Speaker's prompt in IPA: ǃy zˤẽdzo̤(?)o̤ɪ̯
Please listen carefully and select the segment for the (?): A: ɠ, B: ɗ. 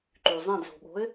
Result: A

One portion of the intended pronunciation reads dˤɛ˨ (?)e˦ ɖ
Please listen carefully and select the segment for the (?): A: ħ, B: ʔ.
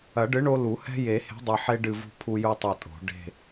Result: A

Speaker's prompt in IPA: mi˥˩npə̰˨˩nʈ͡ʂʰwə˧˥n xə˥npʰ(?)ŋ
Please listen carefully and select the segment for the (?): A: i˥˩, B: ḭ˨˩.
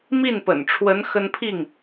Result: A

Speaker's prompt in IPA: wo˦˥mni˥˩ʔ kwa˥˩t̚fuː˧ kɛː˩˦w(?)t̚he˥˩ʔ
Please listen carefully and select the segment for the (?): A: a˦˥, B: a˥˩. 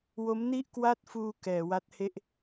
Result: A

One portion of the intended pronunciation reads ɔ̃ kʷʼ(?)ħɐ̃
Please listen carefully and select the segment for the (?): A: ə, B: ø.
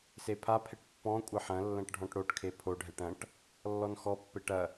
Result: A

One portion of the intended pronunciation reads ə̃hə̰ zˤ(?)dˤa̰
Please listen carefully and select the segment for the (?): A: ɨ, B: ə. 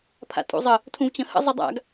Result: A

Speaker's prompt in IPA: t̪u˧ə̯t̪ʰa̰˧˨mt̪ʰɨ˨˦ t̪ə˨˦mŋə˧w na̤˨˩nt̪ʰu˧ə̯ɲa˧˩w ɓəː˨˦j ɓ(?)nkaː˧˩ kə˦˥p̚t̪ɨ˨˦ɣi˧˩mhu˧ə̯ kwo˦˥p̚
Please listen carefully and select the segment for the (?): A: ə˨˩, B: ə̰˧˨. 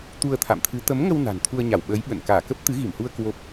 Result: B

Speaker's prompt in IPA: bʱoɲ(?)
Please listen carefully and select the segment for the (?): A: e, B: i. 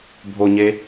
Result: A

